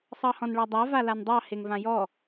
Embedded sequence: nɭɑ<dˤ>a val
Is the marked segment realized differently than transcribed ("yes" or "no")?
no